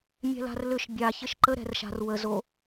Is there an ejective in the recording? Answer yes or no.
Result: no